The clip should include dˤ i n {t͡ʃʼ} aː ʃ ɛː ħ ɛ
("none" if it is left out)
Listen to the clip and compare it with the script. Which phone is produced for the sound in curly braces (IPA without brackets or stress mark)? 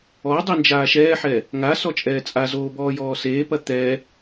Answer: d͡ʒ